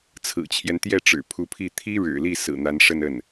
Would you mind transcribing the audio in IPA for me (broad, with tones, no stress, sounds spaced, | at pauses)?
t͡sʰ ɹ̩˨˩ t͡ɕʰ j ɛ˦ n t̪ j ɛ˥˩ ʈ͡ʂ ɻ̩˨˩ pʰ u˧˥ pʰ i˥˩ t̪ʰ i˥ ɻ ɻ̩˨˩ l i˥˩ s ɹ̩˨˩ n̪ a˧˥ n ʂ ə˥˧ n ə˥˩ n